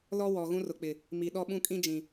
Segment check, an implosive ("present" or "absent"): present